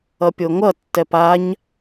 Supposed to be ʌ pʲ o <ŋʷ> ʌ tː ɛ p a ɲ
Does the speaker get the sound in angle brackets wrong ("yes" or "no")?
no